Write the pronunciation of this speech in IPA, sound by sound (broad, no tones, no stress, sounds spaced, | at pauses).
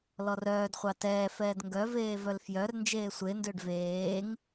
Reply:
l ɔ r œː d χʷ ɑ t ɛː f ɛː d ŋ ɡ œ v eː v œ l f j œ r n d͡ʒ eː sʷ e n d ø ɖ v eː ŋ